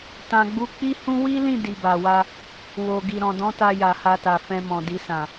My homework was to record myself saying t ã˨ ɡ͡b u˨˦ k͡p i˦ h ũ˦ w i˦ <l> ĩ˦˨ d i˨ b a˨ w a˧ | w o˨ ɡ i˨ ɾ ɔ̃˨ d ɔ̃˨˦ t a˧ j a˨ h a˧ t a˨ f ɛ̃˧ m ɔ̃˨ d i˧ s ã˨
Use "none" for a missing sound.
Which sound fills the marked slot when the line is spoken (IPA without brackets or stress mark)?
l